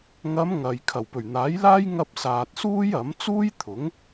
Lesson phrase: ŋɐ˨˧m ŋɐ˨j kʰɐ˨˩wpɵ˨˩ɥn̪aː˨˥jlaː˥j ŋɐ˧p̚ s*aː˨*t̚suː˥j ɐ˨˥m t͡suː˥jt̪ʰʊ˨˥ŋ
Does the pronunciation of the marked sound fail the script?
no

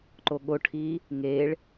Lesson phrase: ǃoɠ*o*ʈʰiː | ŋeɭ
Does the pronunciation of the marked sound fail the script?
no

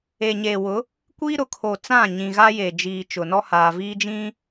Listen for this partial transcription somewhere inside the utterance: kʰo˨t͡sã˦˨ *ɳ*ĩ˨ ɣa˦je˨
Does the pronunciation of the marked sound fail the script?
yes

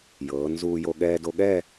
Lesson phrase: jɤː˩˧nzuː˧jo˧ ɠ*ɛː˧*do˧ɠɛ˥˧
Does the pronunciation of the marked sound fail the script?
no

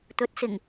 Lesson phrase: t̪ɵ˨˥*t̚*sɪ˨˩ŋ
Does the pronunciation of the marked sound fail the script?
no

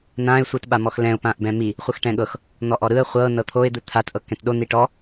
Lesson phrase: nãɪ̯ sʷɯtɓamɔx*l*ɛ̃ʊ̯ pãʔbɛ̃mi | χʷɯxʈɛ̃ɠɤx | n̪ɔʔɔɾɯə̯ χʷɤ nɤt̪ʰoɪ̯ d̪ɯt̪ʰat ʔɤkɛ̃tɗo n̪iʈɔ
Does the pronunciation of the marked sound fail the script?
no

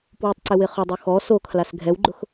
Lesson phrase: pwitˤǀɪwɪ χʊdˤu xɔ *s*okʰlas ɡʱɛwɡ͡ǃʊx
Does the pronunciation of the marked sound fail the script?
no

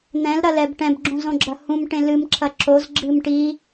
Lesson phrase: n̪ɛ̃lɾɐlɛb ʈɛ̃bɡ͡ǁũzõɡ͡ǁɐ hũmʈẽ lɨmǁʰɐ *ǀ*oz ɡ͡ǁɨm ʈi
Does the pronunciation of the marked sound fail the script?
yes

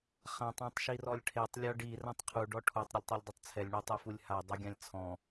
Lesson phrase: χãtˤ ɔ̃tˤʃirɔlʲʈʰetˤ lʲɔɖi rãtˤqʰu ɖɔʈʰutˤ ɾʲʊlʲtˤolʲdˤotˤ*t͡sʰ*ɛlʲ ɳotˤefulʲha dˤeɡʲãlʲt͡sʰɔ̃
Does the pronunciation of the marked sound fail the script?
no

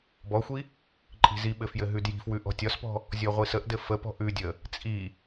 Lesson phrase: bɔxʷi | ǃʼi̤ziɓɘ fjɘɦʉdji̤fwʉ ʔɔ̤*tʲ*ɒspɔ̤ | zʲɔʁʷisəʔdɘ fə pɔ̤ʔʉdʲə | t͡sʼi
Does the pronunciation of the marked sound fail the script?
no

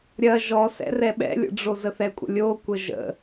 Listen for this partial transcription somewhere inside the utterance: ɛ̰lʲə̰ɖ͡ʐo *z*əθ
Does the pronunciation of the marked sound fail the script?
no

